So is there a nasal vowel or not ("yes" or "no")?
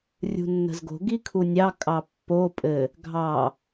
no